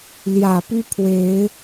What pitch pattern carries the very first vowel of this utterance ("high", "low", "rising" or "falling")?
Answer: low